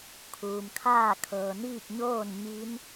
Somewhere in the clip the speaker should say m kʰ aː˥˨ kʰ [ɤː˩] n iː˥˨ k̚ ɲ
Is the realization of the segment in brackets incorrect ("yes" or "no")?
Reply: no